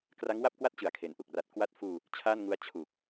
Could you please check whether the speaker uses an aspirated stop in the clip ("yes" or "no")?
yes